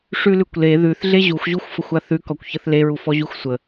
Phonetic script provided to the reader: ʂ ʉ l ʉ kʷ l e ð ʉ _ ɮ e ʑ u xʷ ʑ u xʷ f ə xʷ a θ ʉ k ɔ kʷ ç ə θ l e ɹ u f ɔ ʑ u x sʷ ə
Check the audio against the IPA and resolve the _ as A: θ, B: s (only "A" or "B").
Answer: A